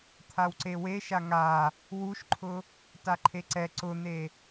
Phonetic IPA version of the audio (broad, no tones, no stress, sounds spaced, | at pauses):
t̪ʰ a w ǀ e w e ʃ a ŋ a | w u ʃ ǃʰ ʊ | t a ǃʰ e ǀ ɛ ǀ ʊ n̪ e